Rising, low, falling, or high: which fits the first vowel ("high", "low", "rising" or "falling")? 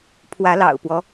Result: rising